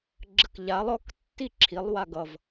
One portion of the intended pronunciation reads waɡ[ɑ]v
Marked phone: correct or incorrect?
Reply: incorrect